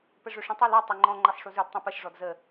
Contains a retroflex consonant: yes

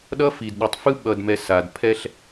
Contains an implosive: yes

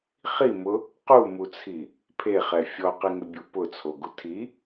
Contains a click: no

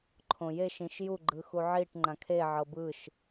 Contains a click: yes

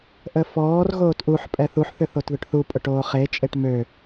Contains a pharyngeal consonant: yes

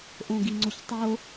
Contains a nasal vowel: yes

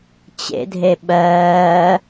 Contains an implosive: yes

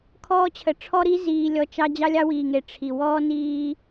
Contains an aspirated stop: yes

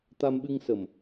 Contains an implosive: yes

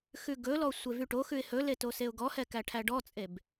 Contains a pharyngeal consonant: no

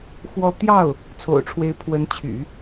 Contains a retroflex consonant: yes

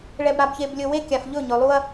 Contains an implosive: no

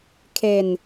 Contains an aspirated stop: yes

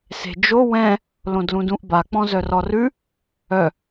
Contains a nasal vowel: yes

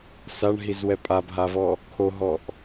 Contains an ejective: yes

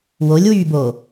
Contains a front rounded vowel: yes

